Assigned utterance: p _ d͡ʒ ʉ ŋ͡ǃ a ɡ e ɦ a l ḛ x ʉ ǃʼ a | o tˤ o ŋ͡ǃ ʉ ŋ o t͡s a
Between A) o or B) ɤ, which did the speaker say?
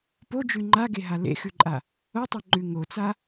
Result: A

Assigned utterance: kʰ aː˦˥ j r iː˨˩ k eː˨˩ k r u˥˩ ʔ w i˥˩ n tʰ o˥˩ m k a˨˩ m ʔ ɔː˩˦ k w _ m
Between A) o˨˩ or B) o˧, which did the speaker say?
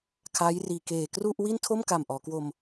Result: B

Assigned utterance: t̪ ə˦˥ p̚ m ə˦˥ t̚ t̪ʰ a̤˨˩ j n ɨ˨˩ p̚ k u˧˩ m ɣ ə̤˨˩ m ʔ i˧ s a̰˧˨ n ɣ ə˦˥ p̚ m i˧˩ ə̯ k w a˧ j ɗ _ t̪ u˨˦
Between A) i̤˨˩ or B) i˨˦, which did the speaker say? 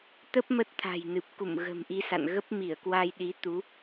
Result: B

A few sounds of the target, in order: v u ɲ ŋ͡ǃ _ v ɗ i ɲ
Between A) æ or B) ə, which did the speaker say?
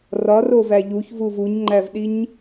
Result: A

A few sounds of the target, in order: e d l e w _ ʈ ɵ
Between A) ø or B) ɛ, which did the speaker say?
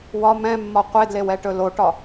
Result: B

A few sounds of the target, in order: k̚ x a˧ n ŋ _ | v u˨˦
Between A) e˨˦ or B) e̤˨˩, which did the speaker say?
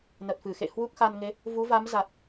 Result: A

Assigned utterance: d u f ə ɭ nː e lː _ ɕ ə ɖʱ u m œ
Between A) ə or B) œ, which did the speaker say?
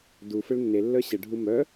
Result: B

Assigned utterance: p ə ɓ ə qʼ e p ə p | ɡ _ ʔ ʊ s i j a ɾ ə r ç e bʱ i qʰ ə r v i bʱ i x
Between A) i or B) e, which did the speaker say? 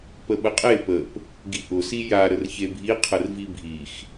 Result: A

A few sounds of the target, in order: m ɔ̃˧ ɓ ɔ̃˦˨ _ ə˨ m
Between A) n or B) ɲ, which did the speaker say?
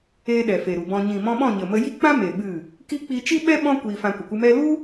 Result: B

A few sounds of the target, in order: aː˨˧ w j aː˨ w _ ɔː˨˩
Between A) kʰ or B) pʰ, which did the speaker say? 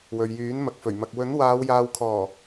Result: A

